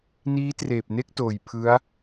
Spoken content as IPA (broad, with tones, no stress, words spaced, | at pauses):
niː˦˥treː˨˩p̚ne˥˩k̚toː˨˩j pʰɯ˦˥a̯